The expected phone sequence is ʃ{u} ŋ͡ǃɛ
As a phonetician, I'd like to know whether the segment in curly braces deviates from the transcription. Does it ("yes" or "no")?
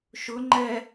yes